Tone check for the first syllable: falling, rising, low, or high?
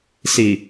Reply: low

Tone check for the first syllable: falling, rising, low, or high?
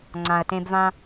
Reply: low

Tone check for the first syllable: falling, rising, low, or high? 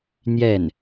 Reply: falling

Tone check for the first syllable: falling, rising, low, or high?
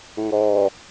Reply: low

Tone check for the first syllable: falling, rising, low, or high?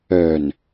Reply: low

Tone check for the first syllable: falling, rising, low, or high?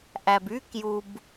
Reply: low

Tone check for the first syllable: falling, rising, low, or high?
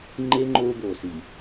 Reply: high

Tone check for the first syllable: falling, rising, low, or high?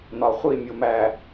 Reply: low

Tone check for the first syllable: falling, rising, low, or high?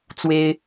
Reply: high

